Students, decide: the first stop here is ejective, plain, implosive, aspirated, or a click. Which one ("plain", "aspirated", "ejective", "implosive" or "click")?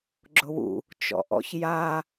click